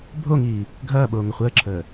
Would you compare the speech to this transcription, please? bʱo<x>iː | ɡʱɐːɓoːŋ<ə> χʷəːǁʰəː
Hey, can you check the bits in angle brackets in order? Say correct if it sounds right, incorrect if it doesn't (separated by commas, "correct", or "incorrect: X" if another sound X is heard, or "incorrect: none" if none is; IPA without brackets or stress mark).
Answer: incorrect: ŋ, correct